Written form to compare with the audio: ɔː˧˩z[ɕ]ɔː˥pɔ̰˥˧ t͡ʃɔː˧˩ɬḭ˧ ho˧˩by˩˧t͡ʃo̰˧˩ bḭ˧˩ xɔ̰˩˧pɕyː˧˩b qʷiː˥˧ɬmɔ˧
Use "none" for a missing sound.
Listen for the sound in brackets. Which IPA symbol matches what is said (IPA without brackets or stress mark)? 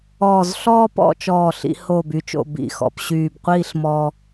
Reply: ɬ